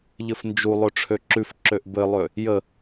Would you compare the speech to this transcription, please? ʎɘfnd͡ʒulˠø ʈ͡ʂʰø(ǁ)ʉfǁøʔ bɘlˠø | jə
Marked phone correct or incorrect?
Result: correct